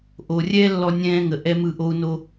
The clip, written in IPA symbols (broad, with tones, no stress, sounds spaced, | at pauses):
ʔ o˨ rʲ ɛ˦ lː ɔ˧ nʲ ɛ̃ː˧ ŋ ə˨ ʔ ɛ˦ m ɯ˦˨ ʔ o˦ u̯ n o˦